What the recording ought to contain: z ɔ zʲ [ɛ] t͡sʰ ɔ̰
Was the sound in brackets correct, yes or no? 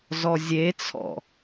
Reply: no